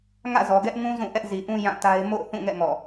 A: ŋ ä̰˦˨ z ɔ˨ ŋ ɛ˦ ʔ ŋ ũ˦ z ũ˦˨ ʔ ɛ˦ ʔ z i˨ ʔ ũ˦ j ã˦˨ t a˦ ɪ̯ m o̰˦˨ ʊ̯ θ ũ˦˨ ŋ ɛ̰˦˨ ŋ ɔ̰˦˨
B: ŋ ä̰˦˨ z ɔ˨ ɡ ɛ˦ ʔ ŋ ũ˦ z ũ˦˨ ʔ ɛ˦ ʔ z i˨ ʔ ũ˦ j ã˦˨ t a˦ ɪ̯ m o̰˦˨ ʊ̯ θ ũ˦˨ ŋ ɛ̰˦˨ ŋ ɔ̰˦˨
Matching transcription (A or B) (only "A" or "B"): B